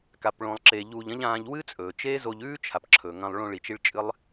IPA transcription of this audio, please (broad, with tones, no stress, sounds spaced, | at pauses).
k a˨ p ɭ õ˨ lˠ ǁ e˨ ʎ uː˧ ʎ ɐ̃˦ ʎ ãː˧ ʎ w ɨ˦ t͡sʼ ɵː˨ t͡ʃ eː˦ z o˧ ʎ ʉː˦ t͡ʃʰ a˨ p ǁʰ ɵ˨ ŋ ɐ̃˧ lˠ ɭ õ˧ ɭ i˨ t͡ʃ i˧ ɭ t͡ʃʼ ɨ˦ lˠ